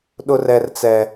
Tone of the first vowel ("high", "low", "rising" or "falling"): high